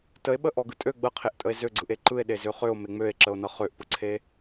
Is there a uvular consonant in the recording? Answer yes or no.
yes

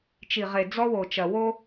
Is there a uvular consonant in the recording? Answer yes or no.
yes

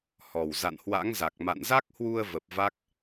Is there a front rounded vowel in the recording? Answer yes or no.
no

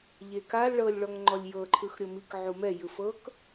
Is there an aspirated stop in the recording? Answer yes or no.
yes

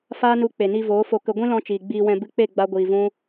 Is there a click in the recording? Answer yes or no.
no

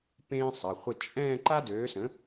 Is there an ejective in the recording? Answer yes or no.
yes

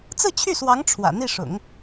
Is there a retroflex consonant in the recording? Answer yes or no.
yes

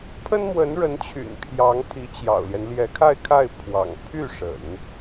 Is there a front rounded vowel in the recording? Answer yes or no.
yes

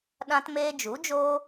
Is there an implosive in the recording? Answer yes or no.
yes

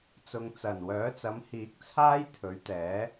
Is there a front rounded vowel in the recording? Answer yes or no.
yes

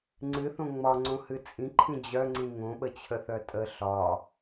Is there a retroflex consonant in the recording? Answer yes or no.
no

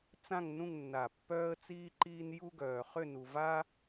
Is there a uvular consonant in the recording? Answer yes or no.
yes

